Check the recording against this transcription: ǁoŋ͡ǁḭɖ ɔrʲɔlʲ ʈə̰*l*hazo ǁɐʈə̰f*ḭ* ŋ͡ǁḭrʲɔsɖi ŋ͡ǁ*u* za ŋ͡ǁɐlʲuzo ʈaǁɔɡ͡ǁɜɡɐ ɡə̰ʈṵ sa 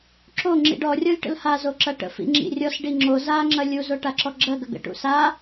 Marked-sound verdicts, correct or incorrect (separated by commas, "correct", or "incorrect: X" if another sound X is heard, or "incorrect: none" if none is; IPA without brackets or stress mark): correct, correct, incorrect: o